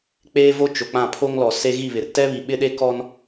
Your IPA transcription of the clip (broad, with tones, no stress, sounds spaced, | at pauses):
k͡p eː˦ v o˦ t͡ʃ o˨ k͡p ã˦˨ pʰ o˦ ŋ l ɔ˨ s e˦ ɣ i˦˨ β ɪ˨ r t ɛ˦ β i˨ ɓ ɪ˦ ɗ e˦ k ɔ˦ n